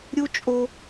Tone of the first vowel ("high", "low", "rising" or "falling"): high